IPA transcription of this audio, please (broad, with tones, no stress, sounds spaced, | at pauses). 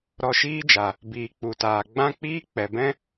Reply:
ɾ ɔ˧ ʃ iː˦ d͡ʒ a˨ | b iː˨ k͡p u˨ t aː˨ ɡ͡b ã˦ k͡p iː˦ k͡p ɛ˨ b ɛ̃˦